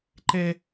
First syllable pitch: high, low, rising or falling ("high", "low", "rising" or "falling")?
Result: high